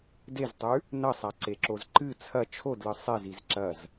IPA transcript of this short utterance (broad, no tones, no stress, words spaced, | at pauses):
deztˤʉ | nɐsˤaǀeǁoz ǃɨ t͡sʰɐ t͡ʃʰodlɨ sˤeziz ǁɐz